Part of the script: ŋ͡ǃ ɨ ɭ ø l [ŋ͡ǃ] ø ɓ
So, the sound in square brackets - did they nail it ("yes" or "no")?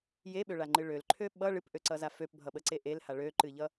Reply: no